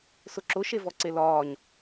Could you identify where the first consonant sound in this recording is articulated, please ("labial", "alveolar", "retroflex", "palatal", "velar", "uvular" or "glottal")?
alveolar